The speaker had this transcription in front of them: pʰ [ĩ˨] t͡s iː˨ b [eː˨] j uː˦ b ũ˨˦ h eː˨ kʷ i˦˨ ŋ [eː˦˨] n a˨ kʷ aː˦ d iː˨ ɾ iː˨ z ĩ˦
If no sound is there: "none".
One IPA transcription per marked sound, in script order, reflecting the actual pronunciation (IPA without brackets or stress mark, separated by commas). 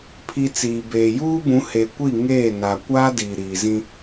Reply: i˨, eː˨, eː˦˨